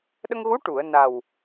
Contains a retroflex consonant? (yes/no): yes